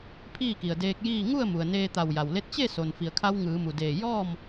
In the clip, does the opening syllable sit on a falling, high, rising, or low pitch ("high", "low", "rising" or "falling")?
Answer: falling